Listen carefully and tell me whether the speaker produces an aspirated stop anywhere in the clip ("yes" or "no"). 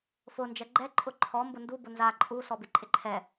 yes